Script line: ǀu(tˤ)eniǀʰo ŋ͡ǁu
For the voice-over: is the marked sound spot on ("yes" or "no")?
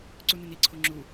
no